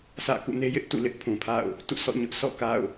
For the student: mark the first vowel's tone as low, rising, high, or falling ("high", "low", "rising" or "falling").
falling